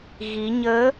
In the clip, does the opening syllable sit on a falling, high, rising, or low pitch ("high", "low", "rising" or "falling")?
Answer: rising